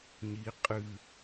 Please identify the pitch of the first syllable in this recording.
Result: rising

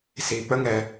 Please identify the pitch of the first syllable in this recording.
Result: low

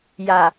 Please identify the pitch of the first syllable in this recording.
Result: low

